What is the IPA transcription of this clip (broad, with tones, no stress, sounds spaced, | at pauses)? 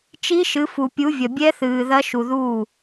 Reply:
t͡ʃ i˦˥ ʃ ɨ˨˦ f u˨ pʲ u˨˦ vʲ ɐ˨ bʲ ɛ˦˥ θ ɨː˨ ð ɐ˦˥ ʃ u˨ ð uː˥˩